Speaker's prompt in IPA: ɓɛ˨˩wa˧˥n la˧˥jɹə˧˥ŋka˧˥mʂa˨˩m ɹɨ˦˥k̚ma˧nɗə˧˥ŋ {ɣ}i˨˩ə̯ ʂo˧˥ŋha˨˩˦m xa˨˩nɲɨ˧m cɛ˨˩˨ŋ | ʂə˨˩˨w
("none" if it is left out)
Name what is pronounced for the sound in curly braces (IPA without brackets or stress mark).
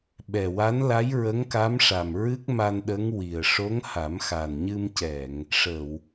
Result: w